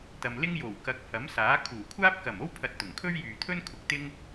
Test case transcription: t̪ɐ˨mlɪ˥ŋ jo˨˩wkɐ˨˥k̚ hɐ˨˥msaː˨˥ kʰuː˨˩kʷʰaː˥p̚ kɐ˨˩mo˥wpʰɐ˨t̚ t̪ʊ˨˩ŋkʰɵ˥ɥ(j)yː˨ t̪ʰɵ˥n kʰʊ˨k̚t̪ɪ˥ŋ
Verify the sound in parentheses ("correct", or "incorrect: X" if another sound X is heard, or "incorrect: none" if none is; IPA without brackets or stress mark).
correct